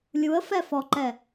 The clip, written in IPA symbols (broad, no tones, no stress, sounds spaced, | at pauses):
lʲ u ə̯ f ɛ f ɔ ǃ ɛ